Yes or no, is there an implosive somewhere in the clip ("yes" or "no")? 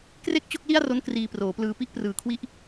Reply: no